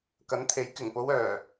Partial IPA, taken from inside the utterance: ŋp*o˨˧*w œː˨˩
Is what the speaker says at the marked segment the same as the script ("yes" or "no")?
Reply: yes